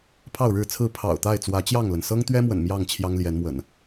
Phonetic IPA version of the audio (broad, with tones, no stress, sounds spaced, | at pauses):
pʰ ɑ˥˨ ʊ̯ ɻ ɻ̩˥˨ t͡sʰ ɹ̩˥˨ pʰ ɑ̰˨˩ ʊ̯ t̪ a˥˨ ɪ̯ t͡s w ä˨˦ t͡ɕ j ɑ˥˨ ŋ l ə˩ n s ɤ˦ ŋ t̪ ɥ ɛ˦ m w ə̰˨˩ n m j ɑ˥˨ ŋ t͡ɕʰ j ɑ˦ ŋ l j ɛ˨˦ n m w ə̰˨˩ n